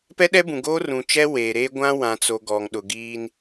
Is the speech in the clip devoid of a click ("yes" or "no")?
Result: yes